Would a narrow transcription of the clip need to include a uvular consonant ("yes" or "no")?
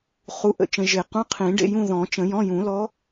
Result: yes